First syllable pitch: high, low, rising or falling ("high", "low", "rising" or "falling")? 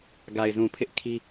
low